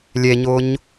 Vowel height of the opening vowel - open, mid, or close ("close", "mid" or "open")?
mid